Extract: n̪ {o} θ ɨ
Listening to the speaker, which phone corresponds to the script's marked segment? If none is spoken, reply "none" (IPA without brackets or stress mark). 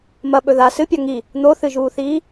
o